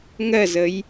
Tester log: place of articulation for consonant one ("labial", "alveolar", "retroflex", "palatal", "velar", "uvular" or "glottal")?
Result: velar